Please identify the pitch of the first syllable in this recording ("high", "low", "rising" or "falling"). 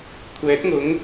rising